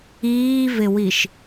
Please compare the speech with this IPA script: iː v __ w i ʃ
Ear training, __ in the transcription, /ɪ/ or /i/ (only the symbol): ɪ